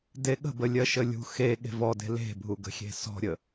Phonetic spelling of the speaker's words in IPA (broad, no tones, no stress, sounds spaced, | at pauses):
d e ɠ ə̤ b ə lʲ ɜ ʃ ə lʲ ṳ x e ɠ e̤ v ɔ d e̤ l e̤ bʱ u ɡ ə̤ xʲ e̤ s ɔ̤ ɾʲ ə